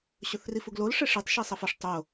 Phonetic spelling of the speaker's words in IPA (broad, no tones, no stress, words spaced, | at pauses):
ɕɵθrifuɡlol ʂeʂetˤ ʃesˤɐfɐʂ tˤo